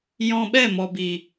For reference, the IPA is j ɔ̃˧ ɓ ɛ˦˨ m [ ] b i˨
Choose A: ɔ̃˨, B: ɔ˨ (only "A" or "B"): B